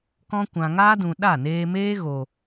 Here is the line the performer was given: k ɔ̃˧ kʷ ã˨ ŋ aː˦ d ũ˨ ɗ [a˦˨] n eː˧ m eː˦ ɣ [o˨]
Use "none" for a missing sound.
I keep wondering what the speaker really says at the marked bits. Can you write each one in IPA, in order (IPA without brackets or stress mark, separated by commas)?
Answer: a˦˨, o˨